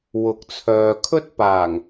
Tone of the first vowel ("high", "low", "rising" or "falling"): rising